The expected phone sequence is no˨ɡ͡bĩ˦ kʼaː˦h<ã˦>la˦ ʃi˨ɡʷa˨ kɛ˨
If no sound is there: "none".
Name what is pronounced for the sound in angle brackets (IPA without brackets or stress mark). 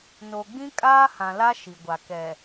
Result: ã˨